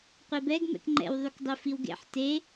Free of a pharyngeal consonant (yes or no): no